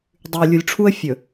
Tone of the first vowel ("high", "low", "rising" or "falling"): low